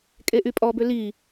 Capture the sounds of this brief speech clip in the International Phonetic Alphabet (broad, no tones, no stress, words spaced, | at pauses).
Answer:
kʼeʔypʼɔbø li